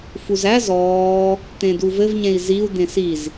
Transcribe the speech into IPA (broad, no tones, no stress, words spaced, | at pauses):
fuzæ zɔː | t̪ẽduvɘvɲẽi̯ ziu̯ d̪ẽsiz